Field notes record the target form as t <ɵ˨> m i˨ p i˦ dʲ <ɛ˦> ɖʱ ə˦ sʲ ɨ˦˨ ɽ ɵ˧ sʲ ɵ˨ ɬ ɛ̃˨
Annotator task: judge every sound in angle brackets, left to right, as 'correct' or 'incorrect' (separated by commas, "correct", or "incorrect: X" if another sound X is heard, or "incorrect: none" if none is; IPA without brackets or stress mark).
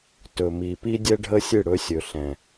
correct, correct